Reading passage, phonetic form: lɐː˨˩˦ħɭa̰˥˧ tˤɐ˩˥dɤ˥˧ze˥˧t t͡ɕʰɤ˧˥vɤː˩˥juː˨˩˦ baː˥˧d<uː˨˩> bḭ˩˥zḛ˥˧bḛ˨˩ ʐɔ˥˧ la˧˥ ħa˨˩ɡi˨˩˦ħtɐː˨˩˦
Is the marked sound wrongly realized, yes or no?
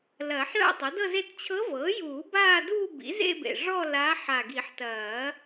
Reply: yes